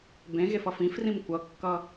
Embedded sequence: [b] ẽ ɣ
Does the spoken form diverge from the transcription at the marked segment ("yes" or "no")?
no